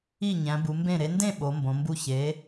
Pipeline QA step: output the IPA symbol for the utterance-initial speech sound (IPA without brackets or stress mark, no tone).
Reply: i